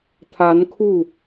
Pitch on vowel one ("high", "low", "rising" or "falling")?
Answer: rising